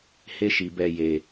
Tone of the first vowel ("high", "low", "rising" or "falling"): high